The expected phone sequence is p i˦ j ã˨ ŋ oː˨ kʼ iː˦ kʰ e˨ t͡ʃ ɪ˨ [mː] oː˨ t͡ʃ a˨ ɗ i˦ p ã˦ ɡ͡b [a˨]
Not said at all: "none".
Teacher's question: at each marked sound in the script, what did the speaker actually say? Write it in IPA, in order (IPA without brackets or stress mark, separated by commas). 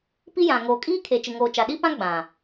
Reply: ŋ, ã˨